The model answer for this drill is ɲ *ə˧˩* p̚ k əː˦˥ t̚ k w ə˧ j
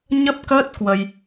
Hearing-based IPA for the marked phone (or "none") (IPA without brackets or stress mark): ə˦˥